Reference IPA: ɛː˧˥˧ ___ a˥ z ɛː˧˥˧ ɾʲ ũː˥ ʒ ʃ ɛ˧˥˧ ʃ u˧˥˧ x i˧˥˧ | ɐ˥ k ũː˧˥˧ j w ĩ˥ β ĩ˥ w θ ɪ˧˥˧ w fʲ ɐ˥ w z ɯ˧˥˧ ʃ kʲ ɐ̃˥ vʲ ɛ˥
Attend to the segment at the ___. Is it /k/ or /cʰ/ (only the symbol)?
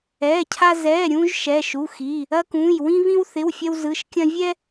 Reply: cʰ